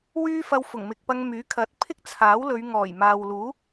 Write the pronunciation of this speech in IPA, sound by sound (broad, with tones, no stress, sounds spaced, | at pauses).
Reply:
w yː˥ f ɐ˧ w f ʊ˨˩ ŋ m ɪ˨ k̚ p ɐ˧ ŋ m yː˨˥ kʰ ɐ˨˥ t̚ pʰ ɪ˥ k̚ t͡sʰ aː˨˥ w l ɵ˨˧ ɥ ŋ ɔː˨˩ j m aː˨ w l uː˨˥